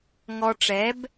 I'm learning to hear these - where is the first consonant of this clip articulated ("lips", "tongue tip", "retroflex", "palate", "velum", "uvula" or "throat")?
velum